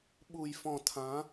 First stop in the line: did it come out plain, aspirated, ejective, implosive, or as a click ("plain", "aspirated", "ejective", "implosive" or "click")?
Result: implosive